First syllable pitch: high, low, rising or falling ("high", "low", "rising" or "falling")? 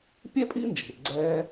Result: high